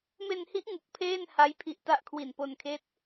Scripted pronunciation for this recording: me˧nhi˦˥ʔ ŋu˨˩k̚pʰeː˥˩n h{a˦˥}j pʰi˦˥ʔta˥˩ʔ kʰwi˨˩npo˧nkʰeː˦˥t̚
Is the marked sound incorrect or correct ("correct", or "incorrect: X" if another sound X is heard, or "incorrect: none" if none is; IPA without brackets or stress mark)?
correct